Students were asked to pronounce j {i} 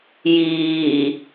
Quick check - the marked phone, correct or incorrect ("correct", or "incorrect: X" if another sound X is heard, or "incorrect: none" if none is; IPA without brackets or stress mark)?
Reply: incorrect: iː